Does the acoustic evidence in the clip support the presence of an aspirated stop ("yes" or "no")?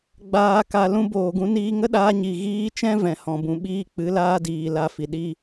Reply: no